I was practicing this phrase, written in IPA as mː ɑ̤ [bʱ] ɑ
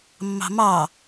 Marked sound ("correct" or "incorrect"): incorrect